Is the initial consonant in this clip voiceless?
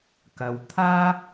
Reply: yes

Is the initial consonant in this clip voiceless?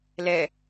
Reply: no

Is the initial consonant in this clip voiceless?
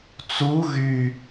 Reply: yes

